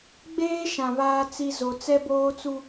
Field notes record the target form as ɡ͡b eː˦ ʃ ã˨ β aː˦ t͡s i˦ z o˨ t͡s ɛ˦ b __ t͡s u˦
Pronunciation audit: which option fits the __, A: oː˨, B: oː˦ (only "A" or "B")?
B